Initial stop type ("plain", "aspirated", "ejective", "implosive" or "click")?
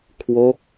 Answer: aspirated